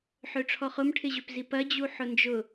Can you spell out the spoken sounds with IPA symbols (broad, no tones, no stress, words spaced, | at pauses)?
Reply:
ħøʈ͡ʂʰɔχʊm ʈʰɪʑøpzipɐ d͡ʑuħʊnd͡ʒʊ